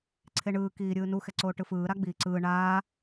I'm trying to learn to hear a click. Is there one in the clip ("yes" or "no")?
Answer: yes